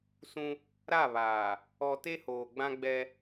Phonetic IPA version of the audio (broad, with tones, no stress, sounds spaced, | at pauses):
s ũ˦ | ɾ a˦˨ β aː˨ | ɔ˨ t e˦ h oː˨ ɡ͡b ã˦ ɡ͡b ɛ˦